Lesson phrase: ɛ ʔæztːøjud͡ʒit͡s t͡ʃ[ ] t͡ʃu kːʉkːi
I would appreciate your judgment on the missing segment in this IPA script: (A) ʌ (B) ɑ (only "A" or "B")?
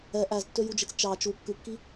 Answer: B